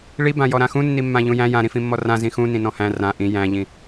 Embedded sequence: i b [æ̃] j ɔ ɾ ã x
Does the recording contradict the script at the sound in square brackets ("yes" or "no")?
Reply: yes